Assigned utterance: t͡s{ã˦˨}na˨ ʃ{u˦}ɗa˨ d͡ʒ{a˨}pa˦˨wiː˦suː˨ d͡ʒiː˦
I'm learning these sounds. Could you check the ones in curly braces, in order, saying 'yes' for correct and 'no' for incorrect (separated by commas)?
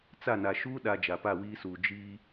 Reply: no, no, yes